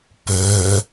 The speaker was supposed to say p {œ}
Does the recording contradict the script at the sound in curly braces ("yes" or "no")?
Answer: no